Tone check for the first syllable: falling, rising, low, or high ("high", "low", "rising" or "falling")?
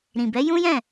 low